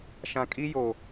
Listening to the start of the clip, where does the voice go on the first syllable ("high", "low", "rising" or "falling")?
low